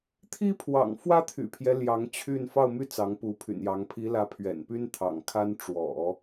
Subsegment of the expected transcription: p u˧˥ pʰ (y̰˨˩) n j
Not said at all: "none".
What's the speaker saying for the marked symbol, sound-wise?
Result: y̰˨˩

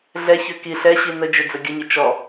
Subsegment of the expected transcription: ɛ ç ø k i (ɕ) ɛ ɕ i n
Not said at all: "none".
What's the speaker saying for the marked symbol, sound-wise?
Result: ɬ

